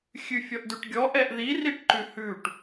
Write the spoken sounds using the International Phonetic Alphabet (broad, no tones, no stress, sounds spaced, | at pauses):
xʲ ʉ fʲ ɔ ʔ d ʉ ʈ ɡʲ ɔ ʔ ɛ ʔ ð i r i ʈ ǃ ʉ h ʉ ʈ